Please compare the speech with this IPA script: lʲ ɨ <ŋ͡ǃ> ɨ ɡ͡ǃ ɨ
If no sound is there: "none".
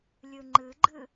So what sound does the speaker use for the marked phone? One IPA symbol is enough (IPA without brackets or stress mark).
ŋ͡ǃ